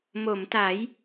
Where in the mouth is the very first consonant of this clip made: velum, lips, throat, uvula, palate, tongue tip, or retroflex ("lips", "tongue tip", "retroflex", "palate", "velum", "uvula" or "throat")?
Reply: lips